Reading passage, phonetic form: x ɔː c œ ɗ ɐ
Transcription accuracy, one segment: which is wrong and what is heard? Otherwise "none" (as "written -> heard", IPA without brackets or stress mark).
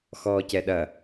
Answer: œ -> ɛ